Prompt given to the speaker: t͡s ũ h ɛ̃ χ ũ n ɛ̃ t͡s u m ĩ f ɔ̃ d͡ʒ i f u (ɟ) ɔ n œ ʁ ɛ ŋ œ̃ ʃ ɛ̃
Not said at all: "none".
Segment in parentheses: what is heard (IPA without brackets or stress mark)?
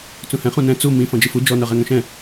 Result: d͡ʒ